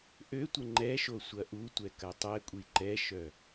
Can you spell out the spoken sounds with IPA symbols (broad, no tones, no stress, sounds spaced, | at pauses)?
ʔ ø tʷ ə ŋ͡ǃ ɛ ʃ o sʷ ɐ ʔ u tʷ ɛ k ɐ tˤ ɛ kʷʼ i ǃ ɛ ʃ œ